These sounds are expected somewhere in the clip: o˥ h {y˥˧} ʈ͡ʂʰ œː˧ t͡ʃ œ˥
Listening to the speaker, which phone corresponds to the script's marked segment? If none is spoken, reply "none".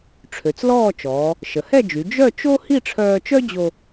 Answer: i˥˧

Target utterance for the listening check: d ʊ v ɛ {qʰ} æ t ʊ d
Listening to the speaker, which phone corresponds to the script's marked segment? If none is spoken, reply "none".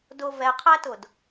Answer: qʰ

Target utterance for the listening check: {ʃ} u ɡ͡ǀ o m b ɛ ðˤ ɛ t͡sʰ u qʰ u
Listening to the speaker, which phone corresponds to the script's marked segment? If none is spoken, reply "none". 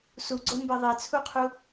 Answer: s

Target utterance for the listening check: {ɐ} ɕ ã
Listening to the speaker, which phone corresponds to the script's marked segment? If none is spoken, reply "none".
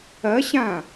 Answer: ɐ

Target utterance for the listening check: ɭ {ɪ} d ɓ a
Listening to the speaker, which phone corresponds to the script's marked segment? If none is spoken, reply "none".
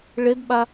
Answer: ɪ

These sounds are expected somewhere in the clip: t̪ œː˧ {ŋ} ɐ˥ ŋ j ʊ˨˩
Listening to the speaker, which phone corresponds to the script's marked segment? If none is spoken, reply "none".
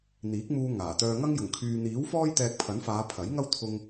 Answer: ŋ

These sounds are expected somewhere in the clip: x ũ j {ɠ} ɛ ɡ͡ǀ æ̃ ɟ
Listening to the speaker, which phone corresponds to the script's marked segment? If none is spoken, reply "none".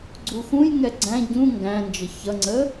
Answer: ŋ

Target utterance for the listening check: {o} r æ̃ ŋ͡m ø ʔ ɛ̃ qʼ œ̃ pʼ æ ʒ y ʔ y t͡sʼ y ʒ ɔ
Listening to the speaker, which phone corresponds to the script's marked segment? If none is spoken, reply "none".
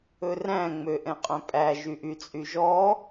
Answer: ɵ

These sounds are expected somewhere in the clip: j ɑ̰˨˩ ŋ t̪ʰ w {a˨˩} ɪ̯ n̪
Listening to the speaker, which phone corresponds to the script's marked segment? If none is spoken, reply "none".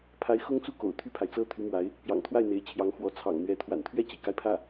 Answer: a˥˩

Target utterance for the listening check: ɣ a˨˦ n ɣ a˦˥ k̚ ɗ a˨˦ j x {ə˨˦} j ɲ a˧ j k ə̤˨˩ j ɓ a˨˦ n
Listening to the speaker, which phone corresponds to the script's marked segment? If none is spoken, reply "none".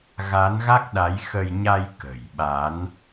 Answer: ə˧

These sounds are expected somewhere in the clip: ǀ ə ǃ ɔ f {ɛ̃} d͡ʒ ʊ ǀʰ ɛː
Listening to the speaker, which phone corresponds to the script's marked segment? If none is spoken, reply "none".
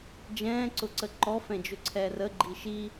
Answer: ɛ̃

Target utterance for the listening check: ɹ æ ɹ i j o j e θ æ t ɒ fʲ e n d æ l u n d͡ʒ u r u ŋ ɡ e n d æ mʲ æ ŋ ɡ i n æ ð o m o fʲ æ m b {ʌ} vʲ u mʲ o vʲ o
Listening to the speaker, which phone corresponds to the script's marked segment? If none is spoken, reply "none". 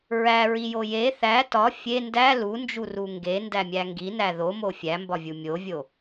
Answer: ɒ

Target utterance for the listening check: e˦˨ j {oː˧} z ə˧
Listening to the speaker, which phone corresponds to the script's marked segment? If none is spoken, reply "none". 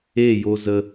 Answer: o˧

